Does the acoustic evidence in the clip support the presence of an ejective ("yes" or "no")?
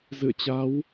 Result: no